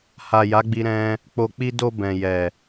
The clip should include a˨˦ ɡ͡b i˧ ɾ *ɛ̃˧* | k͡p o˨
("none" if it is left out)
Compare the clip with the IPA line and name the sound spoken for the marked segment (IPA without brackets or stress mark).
ɛ̃˦